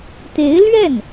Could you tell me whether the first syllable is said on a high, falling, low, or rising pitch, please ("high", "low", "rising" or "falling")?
rising